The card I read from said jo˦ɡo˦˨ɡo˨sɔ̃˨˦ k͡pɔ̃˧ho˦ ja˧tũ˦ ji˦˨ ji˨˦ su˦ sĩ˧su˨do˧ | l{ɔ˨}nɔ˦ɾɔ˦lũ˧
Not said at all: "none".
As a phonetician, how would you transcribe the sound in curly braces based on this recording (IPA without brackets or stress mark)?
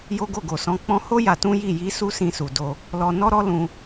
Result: ɔ˧